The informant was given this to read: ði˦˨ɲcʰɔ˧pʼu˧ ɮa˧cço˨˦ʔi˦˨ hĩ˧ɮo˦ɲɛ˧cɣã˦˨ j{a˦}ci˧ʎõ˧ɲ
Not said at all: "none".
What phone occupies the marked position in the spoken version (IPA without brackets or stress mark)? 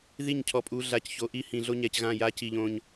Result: a˦